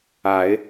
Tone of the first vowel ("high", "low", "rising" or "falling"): rising